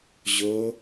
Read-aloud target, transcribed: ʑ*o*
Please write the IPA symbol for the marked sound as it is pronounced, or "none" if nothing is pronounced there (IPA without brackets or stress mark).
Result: o